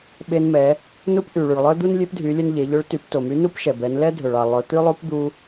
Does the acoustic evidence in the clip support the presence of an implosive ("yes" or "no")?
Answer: yes